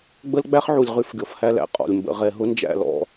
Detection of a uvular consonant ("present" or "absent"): present